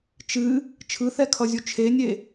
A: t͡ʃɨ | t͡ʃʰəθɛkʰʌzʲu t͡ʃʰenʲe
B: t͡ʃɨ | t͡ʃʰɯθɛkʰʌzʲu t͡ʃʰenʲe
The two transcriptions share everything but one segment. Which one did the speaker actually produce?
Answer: B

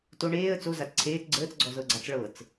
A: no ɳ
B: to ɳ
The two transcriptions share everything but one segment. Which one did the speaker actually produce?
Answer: B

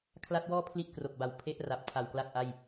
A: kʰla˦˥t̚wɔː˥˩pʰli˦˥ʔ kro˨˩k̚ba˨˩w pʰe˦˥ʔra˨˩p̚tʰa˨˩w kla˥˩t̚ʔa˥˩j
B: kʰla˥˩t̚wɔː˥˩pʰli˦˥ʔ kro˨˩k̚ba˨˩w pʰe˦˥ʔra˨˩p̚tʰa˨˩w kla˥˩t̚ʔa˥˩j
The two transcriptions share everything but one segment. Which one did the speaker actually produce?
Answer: A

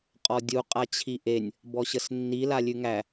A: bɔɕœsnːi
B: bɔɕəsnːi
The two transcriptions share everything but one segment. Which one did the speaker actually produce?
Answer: B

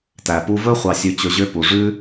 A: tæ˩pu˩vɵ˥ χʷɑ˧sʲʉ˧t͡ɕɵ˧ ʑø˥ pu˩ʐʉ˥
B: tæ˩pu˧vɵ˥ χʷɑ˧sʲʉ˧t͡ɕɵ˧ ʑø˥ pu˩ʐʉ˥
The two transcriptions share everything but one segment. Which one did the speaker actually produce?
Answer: B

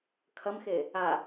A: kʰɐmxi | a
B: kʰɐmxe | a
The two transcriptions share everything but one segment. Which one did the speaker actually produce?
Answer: B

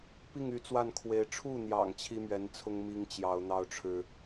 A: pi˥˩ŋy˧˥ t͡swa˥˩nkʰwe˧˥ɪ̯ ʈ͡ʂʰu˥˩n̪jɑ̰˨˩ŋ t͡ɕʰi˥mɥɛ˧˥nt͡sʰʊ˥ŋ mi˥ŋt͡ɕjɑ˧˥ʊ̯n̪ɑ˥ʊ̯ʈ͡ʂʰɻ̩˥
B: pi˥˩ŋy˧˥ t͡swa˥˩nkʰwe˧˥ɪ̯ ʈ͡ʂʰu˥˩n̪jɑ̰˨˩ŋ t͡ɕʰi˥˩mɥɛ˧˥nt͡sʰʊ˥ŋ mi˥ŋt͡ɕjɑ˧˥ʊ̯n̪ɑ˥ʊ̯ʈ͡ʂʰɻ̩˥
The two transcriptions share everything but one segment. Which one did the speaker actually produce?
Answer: A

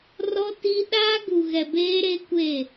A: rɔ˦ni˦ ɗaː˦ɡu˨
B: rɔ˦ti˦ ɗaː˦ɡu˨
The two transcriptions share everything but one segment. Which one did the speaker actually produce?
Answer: B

